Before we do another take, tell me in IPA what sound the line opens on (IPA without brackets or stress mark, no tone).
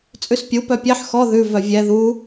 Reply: t͡sʼ